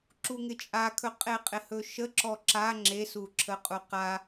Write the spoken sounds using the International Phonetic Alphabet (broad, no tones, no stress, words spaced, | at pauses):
ǁuŋɪt͡ʃʼakʰɵ qʼeqʼɪhɵʃə ǁɔǁa ŋ͡ǁesu ǁʰəqʼuqa